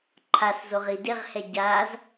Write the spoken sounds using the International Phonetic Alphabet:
ǃʰ a s z o ʁ i d ɪ ʁ h ɛ ɟ a z

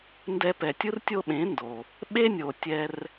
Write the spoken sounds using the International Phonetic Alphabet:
n d ɛ˧ p ɛ˨ tʲ ɯ˦ r tʲ o˦ ɓ ẽ˨˦ n d o˨ | ɓ e˦ nʲ o˨ tʲ ɛ˧ r

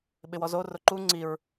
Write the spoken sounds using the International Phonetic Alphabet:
ɓ ɪ w ɔ z o r ʊ ǃ u ŋ͡ǀ i ɹ

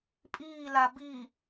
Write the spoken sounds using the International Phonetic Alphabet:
pʼ iː l a b i

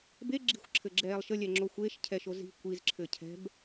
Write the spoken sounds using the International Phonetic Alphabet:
b e ɡ͡ǁ i̤ xʷ ǁʰ ɘ ɡ͡ǁ ɛː lˠ ʃ ə lʲ ɛ ŋ͡ǁ o xʷ eː ʃ cʰ ɛ ʃ o z i̤ kʷ i z ǁʰ ɘ cʰ ɛ̤ b

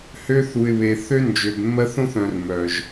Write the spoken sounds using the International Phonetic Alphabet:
h ø˦ θ u˨ ɪ̯ β e˨ θ ø˦ n d͡ʒ ø˨ b mː ɜ˦ θ õ˦ θ œ̃˨ r m œ˨ ʒ

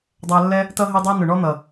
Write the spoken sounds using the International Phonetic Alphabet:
dˤ æ˧ lː ɛ˦ | t ʌ˦ ɦ i˧ dˤ ɑ˦ n ʊ˨ ɳ ɔ˦ n̪ ʌ˨

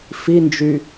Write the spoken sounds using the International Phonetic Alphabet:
f i n d͡ʒ y

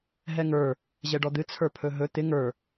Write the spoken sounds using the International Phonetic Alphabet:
ɦ ɛ ŋ ə˞ | ʑ ɛ ɖ ɔ d̪ ɨ t͡sʰ ə˞ pʰ ɵ ɦ ɵ t̪ ɪ ŋ ə˞

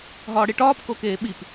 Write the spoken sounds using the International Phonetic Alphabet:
ɦ ɒː ɽ i ʈ ɒː p k o k eː ɓ i p

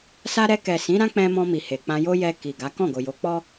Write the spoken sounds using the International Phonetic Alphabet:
s a˦ ɾ ɛ˧ k ɛ˨ s ĩ˨˦ ɾ ã˦ k͡p ɛ̃˧ m ɔ̃˧ m i˨ h e˨ k͡p ã˧ j o˦ j ɛ˧ k i˨ ɡ a˨˦ k ɔ̃˦˨ ɡ o˨ j o˨˦ k͡p ɔ˦

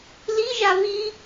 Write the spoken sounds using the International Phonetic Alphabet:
l i ʒ a β i

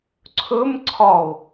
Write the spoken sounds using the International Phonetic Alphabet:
ǀʰ ɵ m ǀʰ ɒ o̯

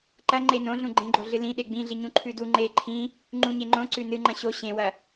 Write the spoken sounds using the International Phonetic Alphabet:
ǃ ɐ ŋ͡ǃ e n õ ɮ ũ ɡ͡ǃ ẽ ɡ͡ǃ o ɮ ɨ l ĩ ɗ e ɡ͡b ĩ ɮ i ɲ ũ ǃʰ ʉ d u ŋ͡ǃ e ǃʰ ĩ | ŋ͡ǃ ũ ɲ e ŋ͡ǃ õ ǀ ʉ n ɨ ŋ͡ǃ ɐ̃ ɕ o ɕ ẽ w ɐ

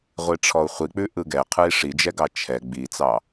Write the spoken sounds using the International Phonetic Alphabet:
ʁʷ i ʈ͡ʂʰ ɔ u̯ χʷ i k͡p ʉ ʔ ɯ ɡ ɛ qʰ ɯ i̯ ʂ i d͡ʒ ɛ ɡ ɑ t͡ʃʰ ɛ ɡ͡b i t͡s ɑ

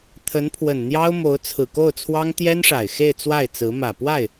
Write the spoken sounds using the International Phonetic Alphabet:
t̪ʰ ə˧˥ n pʰ w ə˨˩ n n̪ j ɑ˥ ʊ̯ m o˧˥ ʊ̯ t͡sʰ ɹ̩˨˩ k o˥˩ ʊ̯ t͡sʰ w ɑ˥ ŋ t̪ j ɛ˥ n ʂ a˨˩ ɪ̯ x e˥˧ ɪ̯ t͡s w a˥˩ ɪ̯ t͡s ɹ̩˧˥ m ä˨˩ p w a˥˩ ɪ̯

